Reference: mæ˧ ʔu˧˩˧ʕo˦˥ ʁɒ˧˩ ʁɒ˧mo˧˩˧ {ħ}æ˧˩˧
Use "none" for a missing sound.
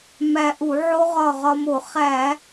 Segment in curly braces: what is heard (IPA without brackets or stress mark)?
χ